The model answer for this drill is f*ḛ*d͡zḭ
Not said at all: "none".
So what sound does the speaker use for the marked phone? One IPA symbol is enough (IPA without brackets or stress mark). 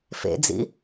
ḛ